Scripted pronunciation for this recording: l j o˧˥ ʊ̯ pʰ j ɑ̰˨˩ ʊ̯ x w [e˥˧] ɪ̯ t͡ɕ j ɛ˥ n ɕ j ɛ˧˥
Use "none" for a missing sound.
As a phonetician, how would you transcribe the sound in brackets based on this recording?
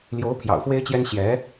e˥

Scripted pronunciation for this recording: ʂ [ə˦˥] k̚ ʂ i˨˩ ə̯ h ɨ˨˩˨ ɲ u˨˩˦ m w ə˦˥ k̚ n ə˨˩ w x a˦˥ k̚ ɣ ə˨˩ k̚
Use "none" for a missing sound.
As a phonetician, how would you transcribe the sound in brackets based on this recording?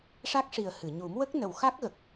a˦˥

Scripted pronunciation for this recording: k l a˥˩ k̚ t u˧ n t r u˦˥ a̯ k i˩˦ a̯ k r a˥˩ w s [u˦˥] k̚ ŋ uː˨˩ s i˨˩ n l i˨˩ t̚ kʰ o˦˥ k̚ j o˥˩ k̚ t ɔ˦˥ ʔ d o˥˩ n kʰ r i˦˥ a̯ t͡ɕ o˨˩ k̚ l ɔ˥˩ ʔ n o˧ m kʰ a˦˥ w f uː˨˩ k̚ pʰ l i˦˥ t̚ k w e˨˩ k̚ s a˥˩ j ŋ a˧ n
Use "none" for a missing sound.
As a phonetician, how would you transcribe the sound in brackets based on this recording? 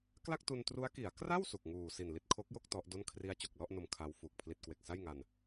u˨˩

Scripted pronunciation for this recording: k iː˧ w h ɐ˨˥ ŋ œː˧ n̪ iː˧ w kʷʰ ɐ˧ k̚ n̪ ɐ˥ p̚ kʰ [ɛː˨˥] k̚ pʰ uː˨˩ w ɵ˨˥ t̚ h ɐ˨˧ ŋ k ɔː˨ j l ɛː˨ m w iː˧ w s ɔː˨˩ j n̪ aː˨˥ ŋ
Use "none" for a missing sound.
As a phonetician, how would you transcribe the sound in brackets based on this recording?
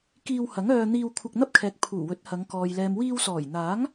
ɛː˨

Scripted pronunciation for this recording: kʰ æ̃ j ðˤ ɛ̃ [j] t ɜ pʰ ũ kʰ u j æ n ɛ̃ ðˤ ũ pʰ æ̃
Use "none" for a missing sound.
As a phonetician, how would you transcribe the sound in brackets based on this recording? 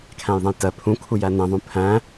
j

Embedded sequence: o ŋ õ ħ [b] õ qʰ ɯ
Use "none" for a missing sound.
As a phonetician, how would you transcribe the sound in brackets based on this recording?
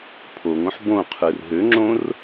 b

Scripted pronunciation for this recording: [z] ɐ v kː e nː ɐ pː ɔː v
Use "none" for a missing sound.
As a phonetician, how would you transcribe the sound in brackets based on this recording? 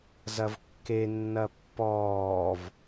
z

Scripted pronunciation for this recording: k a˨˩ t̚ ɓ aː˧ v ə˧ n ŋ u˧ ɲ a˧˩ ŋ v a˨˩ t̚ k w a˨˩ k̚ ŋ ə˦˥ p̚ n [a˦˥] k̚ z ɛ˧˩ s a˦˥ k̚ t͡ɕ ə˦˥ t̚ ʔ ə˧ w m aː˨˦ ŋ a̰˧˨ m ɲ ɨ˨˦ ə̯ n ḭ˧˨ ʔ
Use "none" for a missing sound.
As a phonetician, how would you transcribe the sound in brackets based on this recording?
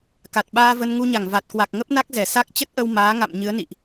a˦˥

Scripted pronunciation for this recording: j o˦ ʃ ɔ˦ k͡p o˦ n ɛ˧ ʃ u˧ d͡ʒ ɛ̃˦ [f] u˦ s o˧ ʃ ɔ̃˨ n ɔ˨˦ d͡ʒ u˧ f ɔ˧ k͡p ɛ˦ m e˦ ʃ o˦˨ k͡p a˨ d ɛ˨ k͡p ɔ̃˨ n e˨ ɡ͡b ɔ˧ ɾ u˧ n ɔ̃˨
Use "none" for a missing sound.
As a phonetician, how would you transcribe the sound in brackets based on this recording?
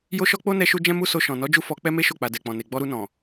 m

